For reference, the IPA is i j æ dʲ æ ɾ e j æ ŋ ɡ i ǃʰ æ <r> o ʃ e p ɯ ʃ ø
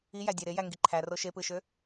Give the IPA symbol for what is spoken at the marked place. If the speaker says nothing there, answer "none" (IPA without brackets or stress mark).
r